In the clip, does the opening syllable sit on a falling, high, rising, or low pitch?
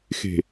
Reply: low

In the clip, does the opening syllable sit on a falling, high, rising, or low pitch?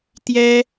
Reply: high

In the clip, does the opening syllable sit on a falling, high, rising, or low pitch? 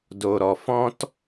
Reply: low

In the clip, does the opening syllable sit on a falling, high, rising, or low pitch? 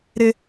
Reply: high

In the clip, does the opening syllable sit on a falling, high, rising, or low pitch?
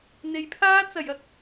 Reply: low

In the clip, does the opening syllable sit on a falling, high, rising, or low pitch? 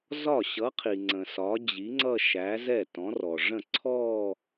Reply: falling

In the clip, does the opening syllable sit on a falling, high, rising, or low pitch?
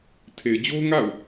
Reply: low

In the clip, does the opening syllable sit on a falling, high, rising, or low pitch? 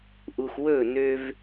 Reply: low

